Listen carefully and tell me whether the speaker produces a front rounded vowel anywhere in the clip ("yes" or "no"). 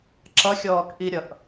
no